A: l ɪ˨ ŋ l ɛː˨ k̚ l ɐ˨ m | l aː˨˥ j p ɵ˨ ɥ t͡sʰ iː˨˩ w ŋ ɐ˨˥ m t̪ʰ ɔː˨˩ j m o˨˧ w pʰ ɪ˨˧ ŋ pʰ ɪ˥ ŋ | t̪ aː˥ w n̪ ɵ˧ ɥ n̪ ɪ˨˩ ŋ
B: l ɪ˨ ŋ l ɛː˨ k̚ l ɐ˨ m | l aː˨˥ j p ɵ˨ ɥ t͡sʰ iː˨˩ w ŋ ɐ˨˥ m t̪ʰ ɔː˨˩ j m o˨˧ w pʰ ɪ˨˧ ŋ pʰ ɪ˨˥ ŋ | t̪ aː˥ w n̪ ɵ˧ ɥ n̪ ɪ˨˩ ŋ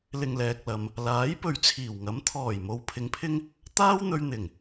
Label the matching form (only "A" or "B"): A